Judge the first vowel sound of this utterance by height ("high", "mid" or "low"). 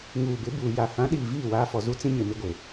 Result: high